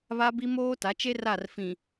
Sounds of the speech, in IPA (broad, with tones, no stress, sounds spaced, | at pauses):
β a˦ b i˦ m oː˦ t a˨˦ t͡ʃ e˦ r a˦˨ r f ĩ˨